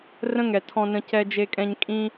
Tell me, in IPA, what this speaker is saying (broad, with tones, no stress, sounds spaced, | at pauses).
r ə̃˦ ŋ ɛ˨ tʰ ɔ̃˧ n ə̃˧ c ɛ˧ d͡ʒ e˧ kʼ ɛ̃˧ ɲ kʼ ĩ˧